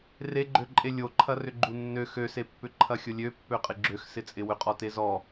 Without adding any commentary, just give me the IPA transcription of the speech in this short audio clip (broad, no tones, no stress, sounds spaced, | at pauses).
r e ɡ͡ǃ ø ǃʼ e lʲ o ǃʰ ɐ r ʏ ɡ͡ǃ u nː ø x ø s e pː ʏ ǃʰ ɐ xʲ ʊ lʲ ø pː ø qʼ ɪ ɡ͡ǁ ø x s ɪ t͡sʼ ɪ w ʏ qʼ ɔ t e z ɔ